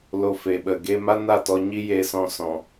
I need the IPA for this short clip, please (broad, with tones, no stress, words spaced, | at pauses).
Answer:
lo˧fe˨ɓə˨ ɡe˧ma˦na˦˨tɔ˧ ɲi˦je˧sɔ̃˧sɔ̃˨